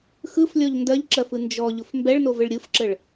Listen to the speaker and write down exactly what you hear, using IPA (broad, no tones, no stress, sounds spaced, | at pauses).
x ɯ f lʲ ɔ ʎ n d ɜ ʎ ǁ ɜ f ɯ n d͡ʒ ɔ ʎ ʊ f m b ɛ ɭ n o v ɘ ɭ ɾʲ ɯ f ǁ ə ɭ